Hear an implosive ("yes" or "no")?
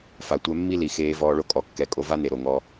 no